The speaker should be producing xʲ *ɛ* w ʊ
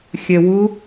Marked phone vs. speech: correct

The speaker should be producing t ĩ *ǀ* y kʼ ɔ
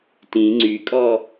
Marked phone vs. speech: incorrect: ŋ͡ǀ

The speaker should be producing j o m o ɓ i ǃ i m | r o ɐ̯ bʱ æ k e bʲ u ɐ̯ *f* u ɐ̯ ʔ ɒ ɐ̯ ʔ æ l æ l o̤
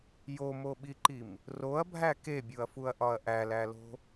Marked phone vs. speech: correct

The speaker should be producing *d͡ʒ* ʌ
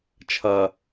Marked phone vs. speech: incorrect: t͡ʃʰ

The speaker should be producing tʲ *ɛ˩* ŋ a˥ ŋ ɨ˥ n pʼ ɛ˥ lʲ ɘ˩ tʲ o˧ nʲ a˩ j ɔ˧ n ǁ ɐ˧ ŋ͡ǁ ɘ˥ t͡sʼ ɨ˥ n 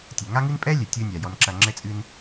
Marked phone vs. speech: correct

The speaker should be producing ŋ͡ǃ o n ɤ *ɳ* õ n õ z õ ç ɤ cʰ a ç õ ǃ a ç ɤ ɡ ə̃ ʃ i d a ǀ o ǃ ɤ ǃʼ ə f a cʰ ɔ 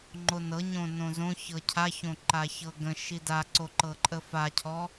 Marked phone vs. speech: incorrect: ɲ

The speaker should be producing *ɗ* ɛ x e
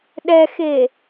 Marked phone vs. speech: correct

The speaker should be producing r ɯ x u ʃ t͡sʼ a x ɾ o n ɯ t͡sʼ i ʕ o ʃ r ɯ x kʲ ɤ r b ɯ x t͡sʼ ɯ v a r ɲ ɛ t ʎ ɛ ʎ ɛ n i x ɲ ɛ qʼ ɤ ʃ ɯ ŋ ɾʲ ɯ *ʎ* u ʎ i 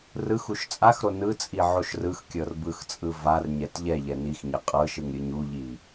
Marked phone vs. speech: incorrect: ɲ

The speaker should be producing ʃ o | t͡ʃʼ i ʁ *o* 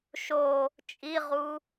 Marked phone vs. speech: incorrect: u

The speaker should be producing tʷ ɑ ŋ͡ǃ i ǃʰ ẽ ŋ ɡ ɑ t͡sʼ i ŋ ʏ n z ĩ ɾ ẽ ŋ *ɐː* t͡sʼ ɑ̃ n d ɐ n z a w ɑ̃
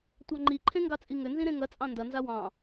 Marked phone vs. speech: incorrect: ɐ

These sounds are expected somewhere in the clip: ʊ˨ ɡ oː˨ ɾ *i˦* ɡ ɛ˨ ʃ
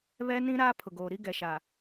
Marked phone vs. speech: correct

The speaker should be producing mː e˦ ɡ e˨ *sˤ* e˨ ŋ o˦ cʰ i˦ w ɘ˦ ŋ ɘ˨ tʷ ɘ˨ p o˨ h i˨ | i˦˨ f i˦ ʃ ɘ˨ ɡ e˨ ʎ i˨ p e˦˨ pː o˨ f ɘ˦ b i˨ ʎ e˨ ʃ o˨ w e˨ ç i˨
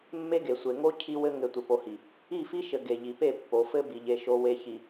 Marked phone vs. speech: incorrect: sʷ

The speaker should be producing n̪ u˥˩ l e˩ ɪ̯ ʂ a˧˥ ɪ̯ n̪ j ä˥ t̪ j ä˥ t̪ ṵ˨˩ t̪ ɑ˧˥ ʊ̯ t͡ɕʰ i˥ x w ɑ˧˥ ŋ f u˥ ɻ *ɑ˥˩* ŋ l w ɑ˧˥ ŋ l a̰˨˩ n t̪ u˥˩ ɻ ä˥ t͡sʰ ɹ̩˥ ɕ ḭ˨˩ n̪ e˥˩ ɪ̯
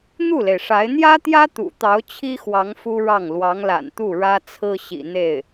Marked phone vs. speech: correct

